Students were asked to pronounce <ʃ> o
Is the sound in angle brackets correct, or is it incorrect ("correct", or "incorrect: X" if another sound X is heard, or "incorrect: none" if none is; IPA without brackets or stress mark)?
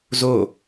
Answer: incorrect: z